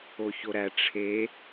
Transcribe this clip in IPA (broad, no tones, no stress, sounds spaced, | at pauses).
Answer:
o ç o ɾ æ ʈ͡ʂʰ e